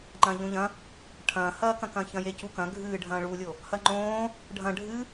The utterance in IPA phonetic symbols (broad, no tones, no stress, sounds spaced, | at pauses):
ŋ͡ǃ ɐ̃ː ʎ õ ʎ ɐ̃ | ʈʰ ɐ̃ː h ɐː k ɐ̃ k ɐ̃ː ç ɐ̃ j e c u k ɐ̃ ɡʱ ɨː ɖʱ ɐ̃ː ɭ u lʲ o | h ɐ ŋ͡ǃ õː | ɖʱ ɐ̃ ɖʱ ɨ